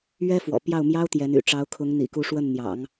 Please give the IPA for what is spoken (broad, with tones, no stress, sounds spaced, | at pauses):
ɥ ɛ˥ f w ɔ̰˨˩ p j ɑ˥˩ ʊ̯ m j ɑ˥ ʊ̯ t̪ j ɛ˧˥ n y̰˨˩ ʈ͡ʂ ɑ˧˥ ʊ̯ kʰ ʊ˧˥ ŋ n̪ ḭ˨˩ k u˧˥ ʂ w ə˥˩ n n̪ j ɑ̰˨˩˦ ŋ